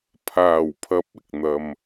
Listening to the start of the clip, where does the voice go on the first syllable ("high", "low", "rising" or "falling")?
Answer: low